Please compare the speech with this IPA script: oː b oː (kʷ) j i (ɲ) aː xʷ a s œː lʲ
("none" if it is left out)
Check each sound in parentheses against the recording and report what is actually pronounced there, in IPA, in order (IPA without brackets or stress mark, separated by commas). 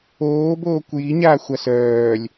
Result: kʷ, ɲ